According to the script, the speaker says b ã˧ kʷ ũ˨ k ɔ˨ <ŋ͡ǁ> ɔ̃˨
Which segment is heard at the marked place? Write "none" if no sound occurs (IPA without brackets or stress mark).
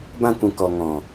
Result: ŋ